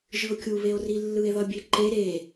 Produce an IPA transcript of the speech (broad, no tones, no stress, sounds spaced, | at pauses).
ʒ ɯ o̯ kʲ u β e o̯ r i lː ɯ e̯ ð ʌ bʲ e ǃ e ɾ e